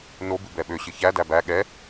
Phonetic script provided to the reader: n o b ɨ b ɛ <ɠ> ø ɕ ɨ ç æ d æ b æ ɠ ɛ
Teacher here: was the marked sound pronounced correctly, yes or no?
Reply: no